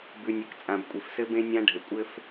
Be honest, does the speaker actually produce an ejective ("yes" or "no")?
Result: yes